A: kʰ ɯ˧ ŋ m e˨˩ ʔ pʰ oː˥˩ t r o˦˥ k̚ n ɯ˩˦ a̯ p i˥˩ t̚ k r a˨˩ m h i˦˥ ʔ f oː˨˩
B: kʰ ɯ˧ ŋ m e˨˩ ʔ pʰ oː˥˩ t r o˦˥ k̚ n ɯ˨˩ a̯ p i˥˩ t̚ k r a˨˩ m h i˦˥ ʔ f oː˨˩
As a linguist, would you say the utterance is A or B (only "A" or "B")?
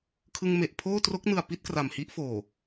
B